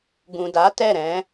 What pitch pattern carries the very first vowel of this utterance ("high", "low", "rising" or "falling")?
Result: low